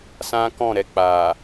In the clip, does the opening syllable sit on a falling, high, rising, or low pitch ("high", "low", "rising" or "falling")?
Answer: high